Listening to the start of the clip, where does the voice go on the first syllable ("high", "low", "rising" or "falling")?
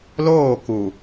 falling